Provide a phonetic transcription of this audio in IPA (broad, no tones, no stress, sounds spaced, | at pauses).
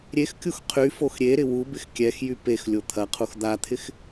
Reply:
ɾʲ e x kʲ u x qʰ y f o x ɾʲ e ɾ ɪ w u b ɪ x kʲ ɛ x j y p e x lʲ o t̪ʰ ɐ qʰ u x d̪ a t̪ʰ ɪ x